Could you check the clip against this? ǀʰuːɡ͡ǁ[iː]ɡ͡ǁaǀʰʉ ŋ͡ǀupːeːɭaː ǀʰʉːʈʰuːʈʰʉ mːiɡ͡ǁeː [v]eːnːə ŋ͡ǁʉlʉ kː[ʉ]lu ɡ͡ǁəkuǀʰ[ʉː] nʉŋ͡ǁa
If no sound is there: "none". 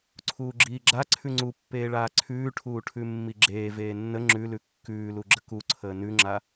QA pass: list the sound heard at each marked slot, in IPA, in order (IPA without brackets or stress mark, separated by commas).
iː, v, ʉː, əː